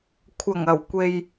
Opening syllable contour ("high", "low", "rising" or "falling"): low